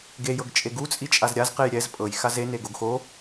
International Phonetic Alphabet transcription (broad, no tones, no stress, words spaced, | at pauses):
ɡe jɤɡt͡ʃʼeɡu t͡sʼit͡ʃʼazɾʲaz qejɾʲɛz pʼɤj xaze neɡoɡxo